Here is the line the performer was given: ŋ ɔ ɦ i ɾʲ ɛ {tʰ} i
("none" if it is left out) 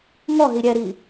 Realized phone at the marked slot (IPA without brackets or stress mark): ɾ